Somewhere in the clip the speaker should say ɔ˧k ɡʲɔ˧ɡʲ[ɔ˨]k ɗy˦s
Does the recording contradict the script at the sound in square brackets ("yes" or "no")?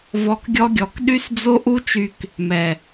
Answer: no